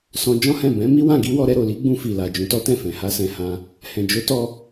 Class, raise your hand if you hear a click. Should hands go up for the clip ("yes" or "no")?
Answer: no